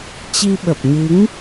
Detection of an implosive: present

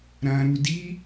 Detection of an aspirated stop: absent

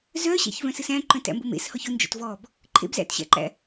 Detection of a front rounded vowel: present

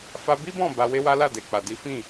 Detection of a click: absent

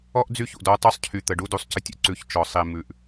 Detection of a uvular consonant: absent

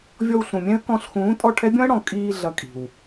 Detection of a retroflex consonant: present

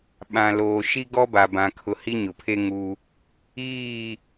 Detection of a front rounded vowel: absent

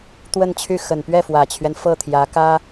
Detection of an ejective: absent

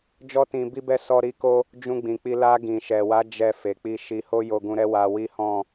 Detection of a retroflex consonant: absent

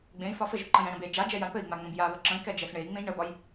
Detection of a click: present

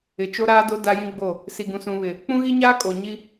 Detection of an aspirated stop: absent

